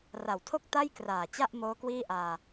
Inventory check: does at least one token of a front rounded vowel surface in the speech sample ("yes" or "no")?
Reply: no